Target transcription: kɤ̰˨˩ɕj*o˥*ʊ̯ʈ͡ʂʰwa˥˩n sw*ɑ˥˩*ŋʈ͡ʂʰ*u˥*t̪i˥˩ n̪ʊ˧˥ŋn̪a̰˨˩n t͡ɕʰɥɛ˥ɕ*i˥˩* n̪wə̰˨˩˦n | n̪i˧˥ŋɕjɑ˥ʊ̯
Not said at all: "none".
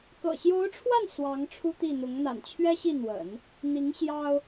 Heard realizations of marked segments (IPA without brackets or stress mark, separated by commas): o˧˥, ɑ˧˥, u˥, i˥˩